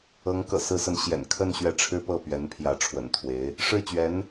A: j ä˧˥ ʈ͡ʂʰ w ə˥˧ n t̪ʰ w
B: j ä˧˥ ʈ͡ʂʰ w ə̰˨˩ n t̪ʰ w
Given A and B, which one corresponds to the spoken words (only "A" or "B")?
B